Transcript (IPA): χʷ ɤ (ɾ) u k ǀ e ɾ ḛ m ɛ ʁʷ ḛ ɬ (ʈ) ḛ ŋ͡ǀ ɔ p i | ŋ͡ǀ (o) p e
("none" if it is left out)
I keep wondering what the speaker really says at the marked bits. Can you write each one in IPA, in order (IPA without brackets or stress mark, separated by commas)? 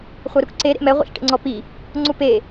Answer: ɾ, ʈ, u